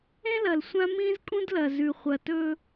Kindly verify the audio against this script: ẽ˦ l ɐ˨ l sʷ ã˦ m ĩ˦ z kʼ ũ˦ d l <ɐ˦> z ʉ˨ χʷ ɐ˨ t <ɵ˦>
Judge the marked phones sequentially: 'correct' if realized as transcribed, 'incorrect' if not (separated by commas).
incorrect, correct